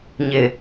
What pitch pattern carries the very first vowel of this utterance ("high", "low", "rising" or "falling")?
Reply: low